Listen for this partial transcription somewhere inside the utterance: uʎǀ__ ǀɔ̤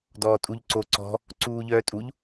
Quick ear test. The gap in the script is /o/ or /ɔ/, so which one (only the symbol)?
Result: o